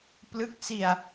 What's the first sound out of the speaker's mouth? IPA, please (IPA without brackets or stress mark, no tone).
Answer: p